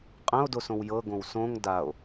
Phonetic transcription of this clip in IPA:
qʼ ɐ̃ o̯ d o s õ w j ɤ ɡ õ w s õ ŋ d a o̯

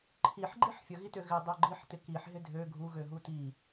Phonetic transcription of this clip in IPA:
ǃʰ i ħ ɡ͡ǃ i ħ fʲ ə ɣ i t ø ɣ ɪ dˤ œ ɡ͡ǃ i ħ t ɪ k i ħ ɦ ɪ dʱ ø ɡʱ u ɣ ø ɦ u t i

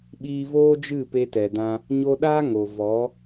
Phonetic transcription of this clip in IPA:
ɓ iː˧ v oː˦ d͡ʒ ɨ˦˨ p e˧ t ɛ˨ d ã˧ | ɲ o˧ ɗ aː˦ ŋ o˨ v ɔ˨˦

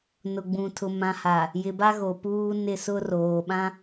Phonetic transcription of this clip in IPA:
n ʊ˨ ɡ͡b ũ˨ tʰ ʊ˨ m ã˨ h a˨ | j ɪ˨ b a˦ ɣ o˨ p uː˦ n ɪ˦˨ s ʊ˦ r oː˨ ɓ ã˦

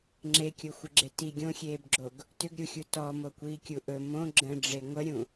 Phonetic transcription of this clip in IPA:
ŋ͡ǁ e kʲ o xʷ ɨ ɡ͡ǁ e t i ɡʲ õ xʲ eː b ɡ͡ǁ o ɡ | t ʏ ɡ ɾʲ u xʲ u t ɔ m o kʷ iː kʲ u ʔ ɵ m õ ɡ͡ǁ ə̃ ɖ͡ʐ e ŋʷ ə ɾʲ ũ

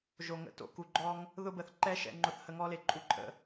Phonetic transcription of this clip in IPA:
ʒ o˨ ŋ ə̰˧ t o̰˧ k u˨ ɡ͡ǃ ɔ˧ ŋ | ð ʊ˧ b ə˨ θ ǃ ɛ˦ ʃ ɛ̰˧ ŋ͡ǃ ʊ˧ θ h ə˧ ŋ ɔ˦ l e˨ ǃʼ u˦ ǃʼ ə̰˧

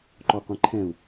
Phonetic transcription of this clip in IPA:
ǃ ɔ qʷ ĩ ǃʰ ɛ̃ u̯

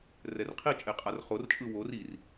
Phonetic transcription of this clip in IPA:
r ɛ r qʰ i t͡ʃʼ e qʼ a r χ o r t͡ʃʼ ɯ w o r i r

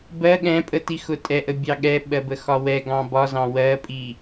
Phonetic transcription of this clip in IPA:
b ɜ ɠ ɛ̃ pʼ ə t i x ʊ tʼ ɛ ʔ ə bʲ ɑ ɠ ɛ ɓ ɜ b ə x ɒ w ɛ ɡ ɑ̃ b ɒ z ɑ̃ w ɜ pʼ i

